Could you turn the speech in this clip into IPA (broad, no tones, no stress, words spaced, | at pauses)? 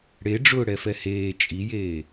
ɽe ɖ͡ʐʊːɽɛfɛheː t͡ʃʼijeː